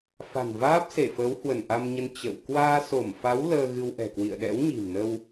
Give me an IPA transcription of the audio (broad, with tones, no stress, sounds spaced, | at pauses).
f a̤˨˩ n v aː˦˥ p̚ s e˧˩ f əː˨˦ w h w ə˧˩ n ʔ a˧ m ɲ ə˧ n t͡ɕ ə̰˧˨ w k w aː˧ s o˧˩ m f a˨˦ w l əː˧ ɣ ɨ˧ w ʔ ɛ̤˨˩ k w ḭ˧˨ ə̯ ɗ ɛ̰˧˥ w ɲ i̤˨˩ m n ə˧ w